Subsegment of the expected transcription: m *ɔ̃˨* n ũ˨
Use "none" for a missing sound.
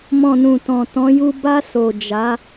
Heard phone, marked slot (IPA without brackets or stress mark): ɔ̃˨